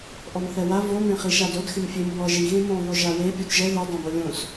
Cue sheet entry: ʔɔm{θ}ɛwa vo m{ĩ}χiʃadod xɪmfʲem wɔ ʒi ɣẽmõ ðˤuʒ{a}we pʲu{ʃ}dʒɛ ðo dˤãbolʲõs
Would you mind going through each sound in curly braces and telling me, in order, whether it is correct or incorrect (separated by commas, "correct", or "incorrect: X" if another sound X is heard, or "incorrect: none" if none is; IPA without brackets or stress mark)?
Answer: correct, incorrect: ẽ, correct, incorrect: none